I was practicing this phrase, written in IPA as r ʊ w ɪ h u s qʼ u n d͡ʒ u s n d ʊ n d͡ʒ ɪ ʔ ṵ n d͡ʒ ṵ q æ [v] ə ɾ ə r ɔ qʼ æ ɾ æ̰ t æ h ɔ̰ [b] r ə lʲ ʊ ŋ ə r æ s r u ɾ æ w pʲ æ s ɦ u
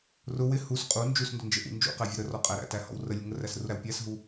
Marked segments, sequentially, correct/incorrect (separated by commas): incorrect, incorrect